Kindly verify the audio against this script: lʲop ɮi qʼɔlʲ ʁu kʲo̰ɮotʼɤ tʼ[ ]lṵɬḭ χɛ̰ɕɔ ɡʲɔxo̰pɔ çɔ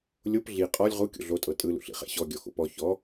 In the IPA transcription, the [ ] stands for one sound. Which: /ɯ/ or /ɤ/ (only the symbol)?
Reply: ɯ